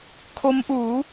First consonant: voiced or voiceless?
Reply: voiceless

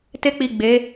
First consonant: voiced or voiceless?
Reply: voiceless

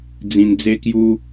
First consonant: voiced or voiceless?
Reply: voiced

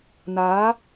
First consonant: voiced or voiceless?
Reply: voiced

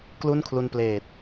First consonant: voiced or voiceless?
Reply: voiceless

